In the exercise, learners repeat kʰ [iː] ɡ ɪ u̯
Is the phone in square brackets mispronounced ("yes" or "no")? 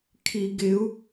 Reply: yes